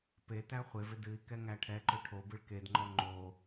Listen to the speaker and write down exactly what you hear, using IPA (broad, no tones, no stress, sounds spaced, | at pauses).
p e t æ χʷ e v ɪ d ɨ i̯ k ɛ ŋ æ ʈʰ ɛ ǃ ɵ ʈʰ o b ɨ ɭ k e d ŋ͡ǃ ɔ ŋ͡ǃ o